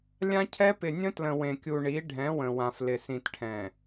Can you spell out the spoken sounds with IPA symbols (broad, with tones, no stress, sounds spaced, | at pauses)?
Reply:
lʲ ã˦ cʰ ɛ˦ p ɪ˨ nʲ ə̃˦ t l ə̃˨ w ẽ˨ kʲ u˨ ɳ i˨˦ ɖʱ ɛ̃˨˦ w ə̃˨ w ã˨ f l ɪ˨ s ĩ˨ t ʈʰ ɛ̃˨